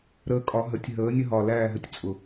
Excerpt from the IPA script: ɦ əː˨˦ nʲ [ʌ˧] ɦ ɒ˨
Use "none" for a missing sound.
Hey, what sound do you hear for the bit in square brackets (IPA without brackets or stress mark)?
ə˧